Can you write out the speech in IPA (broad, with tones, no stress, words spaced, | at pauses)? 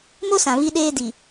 mo˦sã˨ βi˦ɗeː˦ di˨